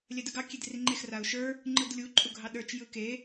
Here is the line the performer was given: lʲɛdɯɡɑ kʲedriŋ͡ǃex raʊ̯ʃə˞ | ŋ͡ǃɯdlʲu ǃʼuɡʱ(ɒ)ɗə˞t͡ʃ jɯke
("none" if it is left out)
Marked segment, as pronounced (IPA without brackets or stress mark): ɑ